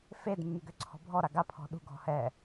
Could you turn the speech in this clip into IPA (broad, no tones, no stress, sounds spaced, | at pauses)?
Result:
f e d mː y ɡ ø ǀʰ ɔ̤ bʱ ɔ ɾ a ɡ a pʰ ɔ̤ ɗ ṳ ɡʱ ɔ̤ h ɛ